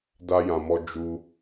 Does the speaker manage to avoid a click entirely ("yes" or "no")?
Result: yes